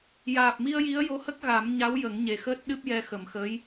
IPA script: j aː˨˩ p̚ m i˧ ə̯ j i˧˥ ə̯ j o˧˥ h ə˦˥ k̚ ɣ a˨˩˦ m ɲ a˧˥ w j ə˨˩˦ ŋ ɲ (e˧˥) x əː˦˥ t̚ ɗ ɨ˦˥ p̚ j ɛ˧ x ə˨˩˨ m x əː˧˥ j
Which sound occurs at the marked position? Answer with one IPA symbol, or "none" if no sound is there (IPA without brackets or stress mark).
e˨˩˨